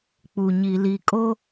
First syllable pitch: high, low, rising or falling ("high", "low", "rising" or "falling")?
low